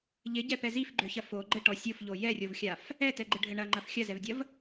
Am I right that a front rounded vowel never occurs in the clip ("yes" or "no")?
no